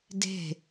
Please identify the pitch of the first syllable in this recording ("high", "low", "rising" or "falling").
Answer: falling